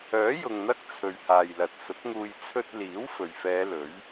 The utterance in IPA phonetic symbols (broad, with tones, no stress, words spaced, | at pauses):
œː˨˥ jʊ˨ŋn̪ɐ˥k̚ t͡sʰɵ˨ɥhaː˨jlɐ˨t̚ sʊ˨˥k̚ŋuː˧j t͡sʰɵ˧t̚liː˨˥w fɵ˨˩ɥfɛː˨˧ lɵ˨˥ɥ